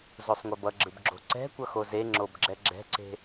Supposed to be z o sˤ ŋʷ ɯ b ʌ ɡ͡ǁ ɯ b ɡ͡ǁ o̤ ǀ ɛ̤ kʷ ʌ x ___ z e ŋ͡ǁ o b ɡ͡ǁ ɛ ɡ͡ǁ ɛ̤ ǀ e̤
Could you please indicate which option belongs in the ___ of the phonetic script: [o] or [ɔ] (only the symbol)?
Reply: o